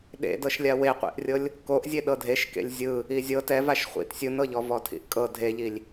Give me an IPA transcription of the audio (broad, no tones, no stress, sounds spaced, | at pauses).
ɗ ḛ d ɤ ʃ lʲ a w e qʷ ḭ ʔ rʲ ɤ lʲ | k o ʔ zʲ e ɗ ɤ dʱ e ʃ k ḛ lʲ zʲ ɯ | i zʲ ɤ t ɛ v a ʃ χʷ ḭ t sʲ ɯ n ɤ ʎ ɔ v ɔ tʰ ḭ ʔ kʼ ɤ dʱ e ʎ i lʲ